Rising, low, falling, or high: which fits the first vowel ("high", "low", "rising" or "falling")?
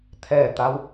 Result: falling